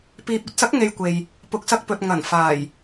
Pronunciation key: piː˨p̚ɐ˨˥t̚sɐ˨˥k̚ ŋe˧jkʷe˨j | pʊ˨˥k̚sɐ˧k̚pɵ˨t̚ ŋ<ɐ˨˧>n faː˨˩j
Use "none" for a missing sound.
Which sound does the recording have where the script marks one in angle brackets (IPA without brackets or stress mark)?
ɐ˨˩